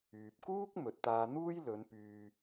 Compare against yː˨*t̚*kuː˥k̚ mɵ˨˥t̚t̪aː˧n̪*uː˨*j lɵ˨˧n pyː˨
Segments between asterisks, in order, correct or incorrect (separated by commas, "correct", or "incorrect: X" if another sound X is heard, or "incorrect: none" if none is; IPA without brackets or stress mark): incorrect: p̚, incorrect: uː˥